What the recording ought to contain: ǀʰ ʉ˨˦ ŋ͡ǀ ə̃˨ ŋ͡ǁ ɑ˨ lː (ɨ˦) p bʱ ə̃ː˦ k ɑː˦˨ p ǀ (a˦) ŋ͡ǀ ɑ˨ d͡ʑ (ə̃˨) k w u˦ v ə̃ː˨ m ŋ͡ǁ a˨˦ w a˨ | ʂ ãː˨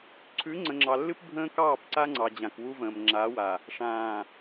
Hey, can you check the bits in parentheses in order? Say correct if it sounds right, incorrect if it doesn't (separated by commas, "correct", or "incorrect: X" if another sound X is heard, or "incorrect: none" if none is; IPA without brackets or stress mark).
correct, correct, incorrect: ã˨